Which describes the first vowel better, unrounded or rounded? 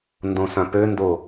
rounded